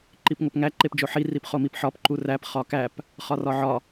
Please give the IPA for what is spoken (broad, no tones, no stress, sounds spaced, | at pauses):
ǃ i p ŋ o p ŋ æ ǃ e p d͡ʒ o ħ i r i p χ o m i p ħ ɒ p ǃ u r æ p χ ɒ k æ p | χ ɒ r ɒ ʕ ɒ